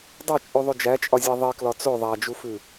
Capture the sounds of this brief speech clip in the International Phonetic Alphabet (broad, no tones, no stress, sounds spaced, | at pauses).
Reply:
dˤ o t͡ʃʼ ʉ ðˤ ʉ d͡ʒ æ t͡ʃʼ ɒ zʲ æ ðˤ i k l ɒ t͡s o ðˤ æ d͡ʒ u f ʉ